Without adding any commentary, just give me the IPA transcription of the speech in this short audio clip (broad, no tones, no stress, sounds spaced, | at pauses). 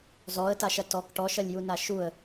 z ɔ ə̯ t a ʃ ɐ t ɔ k ʈ ɔ ʃ ɐ lʲ j u n a ʃ u ə̯